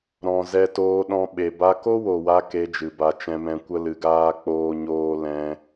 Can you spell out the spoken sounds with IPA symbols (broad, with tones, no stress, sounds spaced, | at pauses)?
ɾ ɔ̃˨ z ɛ˧ t oː˧ ɗ ɔ̃˧ ɓ e˨ b a˧ k o˦ w o˨ w a˧ k e˧ d͡ʒ ɨ˨ b a˧ t͡ʃ ɛ̃˧ m ɛ̃˧ kʷ ə˦ l ɨ˧ ɡ aː˦ k͡p oː˦ ɲ oː˦ l ɛ̃˧